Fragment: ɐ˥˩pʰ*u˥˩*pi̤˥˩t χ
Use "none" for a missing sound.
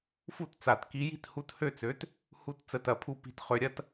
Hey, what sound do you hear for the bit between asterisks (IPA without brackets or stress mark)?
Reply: u˥˩